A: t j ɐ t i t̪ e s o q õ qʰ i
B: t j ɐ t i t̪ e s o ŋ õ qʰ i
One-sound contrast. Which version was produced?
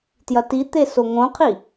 B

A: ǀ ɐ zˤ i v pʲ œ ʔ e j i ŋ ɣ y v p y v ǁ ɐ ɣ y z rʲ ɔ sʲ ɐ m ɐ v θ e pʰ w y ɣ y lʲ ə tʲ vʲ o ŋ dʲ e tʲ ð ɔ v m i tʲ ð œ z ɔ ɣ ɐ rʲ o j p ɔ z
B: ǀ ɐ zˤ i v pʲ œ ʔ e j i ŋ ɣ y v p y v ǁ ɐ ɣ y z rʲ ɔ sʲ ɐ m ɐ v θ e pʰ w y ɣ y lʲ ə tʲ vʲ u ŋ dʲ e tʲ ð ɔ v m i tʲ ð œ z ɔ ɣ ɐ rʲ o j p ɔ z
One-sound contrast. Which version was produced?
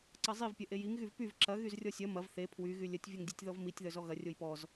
A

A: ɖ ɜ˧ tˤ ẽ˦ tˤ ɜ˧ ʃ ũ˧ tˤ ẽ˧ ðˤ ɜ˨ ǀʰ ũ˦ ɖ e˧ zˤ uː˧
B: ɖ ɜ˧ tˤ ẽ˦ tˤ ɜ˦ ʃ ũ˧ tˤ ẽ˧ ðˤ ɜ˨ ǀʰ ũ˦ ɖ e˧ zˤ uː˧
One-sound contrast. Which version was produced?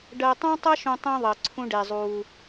B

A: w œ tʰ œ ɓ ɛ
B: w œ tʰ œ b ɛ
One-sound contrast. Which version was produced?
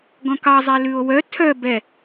B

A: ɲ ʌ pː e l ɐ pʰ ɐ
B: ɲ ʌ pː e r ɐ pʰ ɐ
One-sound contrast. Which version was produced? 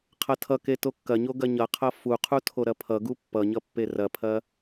B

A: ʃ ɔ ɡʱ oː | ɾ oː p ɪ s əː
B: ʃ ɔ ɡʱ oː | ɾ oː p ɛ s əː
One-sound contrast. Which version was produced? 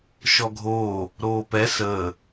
B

